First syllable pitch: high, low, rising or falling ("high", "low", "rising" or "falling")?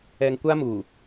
low